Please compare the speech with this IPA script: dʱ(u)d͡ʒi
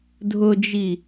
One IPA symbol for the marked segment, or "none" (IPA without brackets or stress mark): ʊ